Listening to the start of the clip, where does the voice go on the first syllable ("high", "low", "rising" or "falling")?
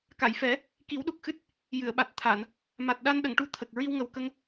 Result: low